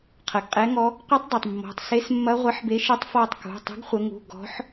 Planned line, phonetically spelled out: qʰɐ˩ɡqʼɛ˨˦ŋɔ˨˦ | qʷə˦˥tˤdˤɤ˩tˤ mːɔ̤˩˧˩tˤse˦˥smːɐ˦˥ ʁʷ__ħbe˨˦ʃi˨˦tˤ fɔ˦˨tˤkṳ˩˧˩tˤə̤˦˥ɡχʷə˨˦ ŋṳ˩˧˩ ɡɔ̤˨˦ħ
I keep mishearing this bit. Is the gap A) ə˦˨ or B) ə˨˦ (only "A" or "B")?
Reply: B